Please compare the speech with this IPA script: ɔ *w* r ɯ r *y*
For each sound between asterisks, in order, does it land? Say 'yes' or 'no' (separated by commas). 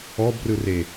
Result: no, no